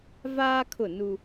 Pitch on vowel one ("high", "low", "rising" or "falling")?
high